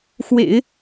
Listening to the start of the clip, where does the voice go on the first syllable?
low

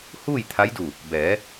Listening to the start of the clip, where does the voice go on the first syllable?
falling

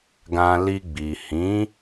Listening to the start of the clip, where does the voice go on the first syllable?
low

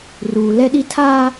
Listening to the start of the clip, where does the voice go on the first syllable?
low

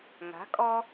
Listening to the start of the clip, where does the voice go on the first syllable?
rising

